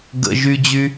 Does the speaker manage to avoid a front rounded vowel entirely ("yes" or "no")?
no